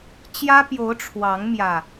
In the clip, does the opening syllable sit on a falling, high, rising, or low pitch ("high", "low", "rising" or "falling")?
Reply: high